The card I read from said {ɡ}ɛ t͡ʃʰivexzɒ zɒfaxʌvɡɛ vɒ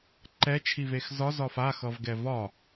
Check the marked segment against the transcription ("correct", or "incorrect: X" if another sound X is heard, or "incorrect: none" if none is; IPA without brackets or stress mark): incorrect: ǃ